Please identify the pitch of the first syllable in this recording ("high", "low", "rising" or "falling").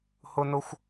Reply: high